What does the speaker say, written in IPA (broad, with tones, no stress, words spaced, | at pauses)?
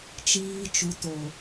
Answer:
t͡ʃiː˧ t͡ʃu˨˦to˨